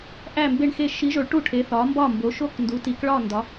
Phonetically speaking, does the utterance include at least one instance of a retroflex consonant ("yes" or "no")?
yes